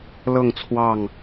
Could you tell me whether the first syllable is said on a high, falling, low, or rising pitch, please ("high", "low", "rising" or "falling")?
falling